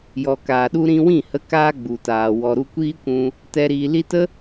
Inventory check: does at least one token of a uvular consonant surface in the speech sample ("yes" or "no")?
no